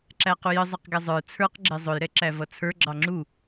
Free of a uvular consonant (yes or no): no